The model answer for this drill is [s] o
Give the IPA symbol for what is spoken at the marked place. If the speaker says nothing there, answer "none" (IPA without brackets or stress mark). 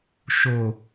ʃ